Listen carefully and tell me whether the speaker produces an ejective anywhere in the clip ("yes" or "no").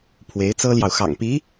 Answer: no